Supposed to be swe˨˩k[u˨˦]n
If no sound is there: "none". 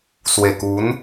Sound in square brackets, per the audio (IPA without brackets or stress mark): u˨˦